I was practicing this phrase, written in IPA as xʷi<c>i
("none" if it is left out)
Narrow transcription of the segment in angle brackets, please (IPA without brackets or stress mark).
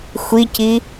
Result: c